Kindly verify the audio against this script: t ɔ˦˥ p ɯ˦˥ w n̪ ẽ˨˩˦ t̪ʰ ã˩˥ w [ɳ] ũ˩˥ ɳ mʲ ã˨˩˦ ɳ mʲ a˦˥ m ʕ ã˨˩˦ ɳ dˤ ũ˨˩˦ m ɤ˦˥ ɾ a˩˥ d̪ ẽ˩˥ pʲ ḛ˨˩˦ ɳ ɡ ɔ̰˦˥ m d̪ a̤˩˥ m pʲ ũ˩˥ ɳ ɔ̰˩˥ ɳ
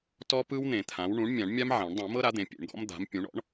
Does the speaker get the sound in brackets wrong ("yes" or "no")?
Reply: no